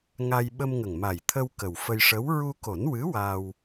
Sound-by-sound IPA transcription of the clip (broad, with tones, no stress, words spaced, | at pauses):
ŋa˧j ɓə˧mŋə˨˩ŋma˨˩jt̪ʰə˧w kə˨˩wfə˧jʂə˧˥w ɹu˧ko˨˩˦nwɨ˧˥ waː˧w